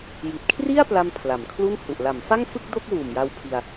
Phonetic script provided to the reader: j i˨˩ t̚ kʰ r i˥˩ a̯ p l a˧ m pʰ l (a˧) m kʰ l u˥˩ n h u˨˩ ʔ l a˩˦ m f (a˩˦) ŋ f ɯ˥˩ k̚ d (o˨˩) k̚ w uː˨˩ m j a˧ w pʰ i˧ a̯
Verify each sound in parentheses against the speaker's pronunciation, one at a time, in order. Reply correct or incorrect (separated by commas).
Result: incorrect, incorrect, incorrect